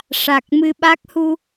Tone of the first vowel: low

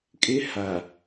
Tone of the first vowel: high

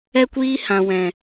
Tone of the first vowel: high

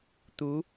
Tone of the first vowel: rising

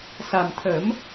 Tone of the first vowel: low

